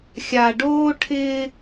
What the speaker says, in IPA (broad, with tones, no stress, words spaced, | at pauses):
xʲa˨ɖoː˦ʈʰɪː˦